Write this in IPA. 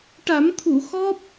ʈ a˨˩˦ m t̪ʰ u˨˩˨ x ɔ˦˥ p̚

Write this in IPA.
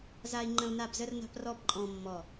z a˦ i̯ ŋ͡ǃ ə̃˦ u̯ n a˦˨ b z ə˦ r n a̤˦ p r ɔ˦ b ǃʼ ɔ̃˦ mː ɔ˦˨

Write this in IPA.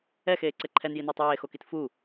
ɛ x eː ǀ ɛ ǃʰ ɛ n j i n ʌː tˤ j eː x o k i t f u

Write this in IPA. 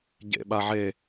ɟ ḛ ɓ a ʕ e

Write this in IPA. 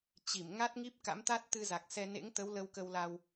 t͡ɕ i˧˩ m ŋ a˦˥ t̚ ŋ i˦˥ p̚ k a̰˧˥ m t̪ a˦˥ t̚ t̪ ɨ˧ z a˨˩ k̚ s ɛ˧ n ḛ˧˥ ŋ t̪ ə˨˦ w l ə˧ w k ə˧ w l a˧ w

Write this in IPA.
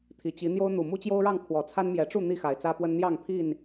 t̪ʰ i˨˩ t͡ɕ i˨˦ n̪ j o˦ ʊ̯ n̪ u˨˩ m u˦ t͡ɕ j o˦ ʊ̯ ɻ ɑ˥˨ ŋ kʰ w ɔ˨˩ t͡sʰ a˦ n m j ɛ˨˦ ʈ͡ʂ u˥˨ n̪ i˥˨ x a˨˩ ɪ̯ t͡s ä˦ p w ə˦ n n̪ j ɑ˥˨ ŋ pʰ i˥˨ n

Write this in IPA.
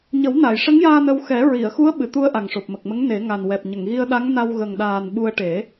ɲ ə˨˩˦ w n aː˨˩˨ j ʂ ə˧˥ ŋ j aː˧ n ə˧ w x ɛ˨˩˦ ɹ i˨˩˨ ə̯ x u˧˥ ə̯ ɓ ɨ˨˩˨ t̪ u˧ ə̯ ʔ a˨˩ ŋ ʂ o˨˩ p̚ m ə˨˩ k̚ m ə˧˥ ŋ n e˨˩˦ ŋ a˨˩ n w ɛ˨˩ p̚ ɲ ə˨˩˨ ŋ ɣ i˧ ə̯ ɗ a˧˥ ŋ n a˧ w ɣ ə˨˩ ŋ ɗ aː˨˩ n ɓ u˧ ə̯ ʈ e˨˩˦

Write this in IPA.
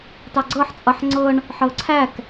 t ɑ ɡ͡ǀ ɤ ħ t͡sʼ ʌ ħ ŋ͡ǀ ɤ ɳ | ħ ɤ ǀʰ æ k

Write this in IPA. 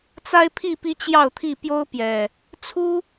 t͡s a˦ ɪ̯ pʰ i˥˨ p i˦ t͡ɕ j ɑ˥˨ ʊ̯ t̪ʰ i˥˨ p j o˦ ʊ̯ p j ɛ˨˩ | t͡sʰ u˦

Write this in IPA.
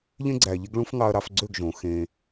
ʎ ẽ˦ ɡ͡ǀ æ˨ ʎ e˦ ɡ ɭ ũ˦ f ŋ ɑ˧ ɐ̯ ɾ ɑ˧ f ɡ͡ǀ ø˦˨ ɡ ʒ õ˨˦ x ẽ˧

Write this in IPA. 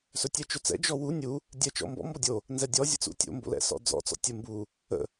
s ɵ tʲ ɛ t͡ʃ ɵ t͡s ɛ̰ d͡ʒ ɔ w u nʲ u | dʲ ɛ t͡ʃ ɔ̰ m b ɔ̰ m b ɔ dʲ o | n z ɛ dʲ ɔ zʲ ə̰ t͡s ṵ tʲ o̰ m b o̰ l ɛ̰ s ɔ̰ d͡z ɔ̰ t͡s ɔ̰ tʲ ə m b u | ə̰

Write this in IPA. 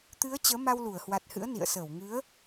t̪ ɨ˨˦ ə̯ t͡ɕ əː˨˦ m a˧ w l u˧˩ ə̯ h w a˨˩ t̚ h ɨ̰˧˥ ə̯ n ḭ˧˨ ə̯ s əː˧˩ w ŋ ɨ˨˦ ə̯

